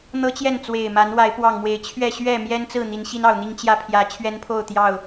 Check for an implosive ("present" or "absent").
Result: absent